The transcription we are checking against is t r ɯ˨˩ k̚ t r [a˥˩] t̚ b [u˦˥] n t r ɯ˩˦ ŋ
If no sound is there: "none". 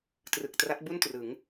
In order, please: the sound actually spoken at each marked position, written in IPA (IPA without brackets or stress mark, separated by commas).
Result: a˦˥, u˥˩